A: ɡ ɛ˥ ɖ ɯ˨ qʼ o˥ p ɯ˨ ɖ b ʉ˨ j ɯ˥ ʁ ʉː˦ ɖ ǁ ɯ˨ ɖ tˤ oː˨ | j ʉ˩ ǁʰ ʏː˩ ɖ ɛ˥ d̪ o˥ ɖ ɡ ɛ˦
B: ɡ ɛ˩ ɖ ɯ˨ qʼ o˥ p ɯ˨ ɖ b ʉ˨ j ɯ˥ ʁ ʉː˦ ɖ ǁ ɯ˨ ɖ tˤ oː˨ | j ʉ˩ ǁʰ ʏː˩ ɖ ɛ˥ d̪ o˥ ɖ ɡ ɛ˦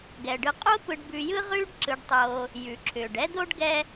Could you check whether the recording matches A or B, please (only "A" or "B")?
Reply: B